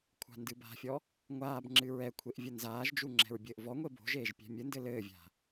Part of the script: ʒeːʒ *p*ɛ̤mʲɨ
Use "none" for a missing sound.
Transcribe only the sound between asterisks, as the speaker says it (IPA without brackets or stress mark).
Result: pʲ